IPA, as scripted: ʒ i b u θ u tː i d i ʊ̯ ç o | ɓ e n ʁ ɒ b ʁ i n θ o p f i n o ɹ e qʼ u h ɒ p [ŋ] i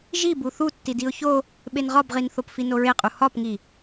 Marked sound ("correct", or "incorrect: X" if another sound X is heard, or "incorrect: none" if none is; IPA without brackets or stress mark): correct